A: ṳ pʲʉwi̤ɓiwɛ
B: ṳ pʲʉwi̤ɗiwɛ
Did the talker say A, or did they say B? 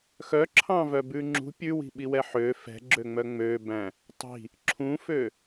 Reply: A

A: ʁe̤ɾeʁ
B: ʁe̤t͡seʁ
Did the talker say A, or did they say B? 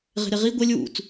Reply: A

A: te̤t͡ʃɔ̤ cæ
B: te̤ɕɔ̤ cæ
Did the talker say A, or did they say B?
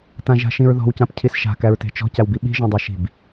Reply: A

